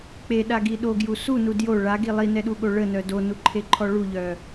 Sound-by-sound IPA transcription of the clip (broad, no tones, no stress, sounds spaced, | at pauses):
k͡p e ɗ a ɡ i ɗ o ɡ j u s u n u d j o ɭ a ɡ i lˠ i n ɛ ɗ u ɠ o ɭ ə n œ d o n u ǃʰ e ǃʰ ɔ ɭ u ʎ œ